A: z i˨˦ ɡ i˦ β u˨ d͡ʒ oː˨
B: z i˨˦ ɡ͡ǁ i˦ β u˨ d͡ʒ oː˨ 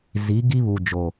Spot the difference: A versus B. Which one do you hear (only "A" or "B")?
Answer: A